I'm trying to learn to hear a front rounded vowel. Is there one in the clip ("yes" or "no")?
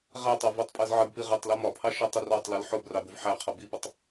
no